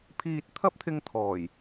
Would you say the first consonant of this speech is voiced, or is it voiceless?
voiceless